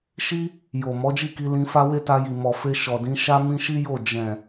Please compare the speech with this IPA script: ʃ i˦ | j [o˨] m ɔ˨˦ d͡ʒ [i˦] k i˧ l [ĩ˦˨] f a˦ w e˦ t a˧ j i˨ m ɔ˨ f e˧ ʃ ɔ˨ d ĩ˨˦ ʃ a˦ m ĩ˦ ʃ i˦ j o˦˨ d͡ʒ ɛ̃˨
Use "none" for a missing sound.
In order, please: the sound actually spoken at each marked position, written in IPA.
o˨, i˦˨, ĩ˧

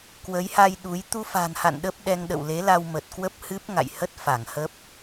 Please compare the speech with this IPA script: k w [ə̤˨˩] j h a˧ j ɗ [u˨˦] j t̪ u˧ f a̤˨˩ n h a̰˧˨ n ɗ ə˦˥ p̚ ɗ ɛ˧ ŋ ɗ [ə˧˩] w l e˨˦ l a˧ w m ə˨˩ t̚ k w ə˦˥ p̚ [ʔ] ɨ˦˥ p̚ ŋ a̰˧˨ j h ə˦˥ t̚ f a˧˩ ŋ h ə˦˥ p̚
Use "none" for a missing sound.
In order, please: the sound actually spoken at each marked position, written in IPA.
ə˨˦, u˨˦, ə̰˧˨, h

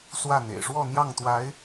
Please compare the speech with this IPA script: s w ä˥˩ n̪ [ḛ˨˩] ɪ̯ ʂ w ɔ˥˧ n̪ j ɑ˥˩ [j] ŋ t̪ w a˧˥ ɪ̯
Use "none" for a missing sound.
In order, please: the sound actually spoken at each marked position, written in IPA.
ḛ˨˩, none

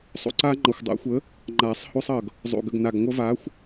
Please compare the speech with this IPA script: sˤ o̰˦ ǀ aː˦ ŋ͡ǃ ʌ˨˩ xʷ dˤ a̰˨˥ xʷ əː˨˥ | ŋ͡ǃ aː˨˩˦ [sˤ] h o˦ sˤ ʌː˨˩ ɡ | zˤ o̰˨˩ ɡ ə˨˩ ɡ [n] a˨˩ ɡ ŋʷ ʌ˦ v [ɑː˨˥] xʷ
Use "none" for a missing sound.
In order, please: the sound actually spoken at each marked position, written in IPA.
sˤ, n, aː˨˥

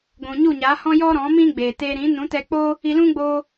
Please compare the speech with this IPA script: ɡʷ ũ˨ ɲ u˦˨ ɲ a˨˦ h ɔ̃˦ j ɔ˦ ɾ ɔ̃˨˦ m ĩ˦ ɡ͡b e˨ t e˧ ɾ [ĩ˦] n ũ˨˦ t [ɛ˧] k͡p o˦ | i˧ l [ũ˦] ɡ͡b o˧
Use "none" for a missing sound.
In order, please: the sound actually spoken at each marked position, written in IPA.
ĩ˨˦, ɛ˧, ũ˦

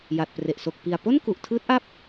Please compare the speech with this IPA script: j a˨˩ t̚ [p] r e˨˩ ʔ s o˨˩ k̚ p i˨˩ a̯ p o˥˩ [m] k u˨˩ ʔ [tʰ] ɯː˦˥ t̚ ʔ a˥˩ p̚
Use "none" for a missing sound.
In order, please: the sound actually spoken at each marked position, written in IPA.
p, n, tʰ

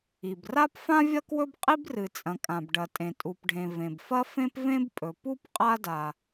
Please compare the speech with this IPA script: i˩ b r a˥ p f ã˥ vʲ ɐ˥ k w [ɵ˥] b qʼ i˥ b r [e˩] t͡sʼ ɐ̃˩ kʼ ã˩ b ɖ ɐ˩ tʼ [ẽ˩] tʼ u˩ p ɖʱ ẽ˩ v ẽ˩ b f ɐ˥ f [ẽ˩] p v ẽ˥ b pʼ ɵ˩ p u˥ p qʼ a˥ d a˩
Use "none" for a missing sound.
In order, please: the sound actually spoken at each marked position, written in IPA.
ɵ˥, ɨ˩, ẽ˩, ẽ˥

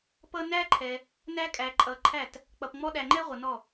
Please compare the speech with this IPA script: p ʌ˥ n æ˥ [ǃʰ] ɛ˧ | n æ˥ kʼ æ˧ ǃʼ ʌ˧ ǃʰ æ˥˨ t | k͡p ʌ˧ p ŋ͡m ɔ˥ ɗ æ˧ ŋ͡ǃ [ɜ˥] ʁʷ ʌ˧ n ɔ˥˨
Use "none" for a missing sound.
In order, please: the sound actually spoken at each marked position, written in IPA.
ǃʰ, ɛ˥

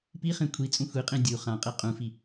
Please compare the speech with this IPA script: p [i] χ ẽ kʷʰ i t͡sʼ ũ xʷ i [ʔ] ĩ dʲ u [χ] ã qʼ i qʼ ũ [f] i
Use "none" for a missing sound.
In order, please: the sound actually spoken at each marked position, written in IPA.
i, qʼ, χ, f

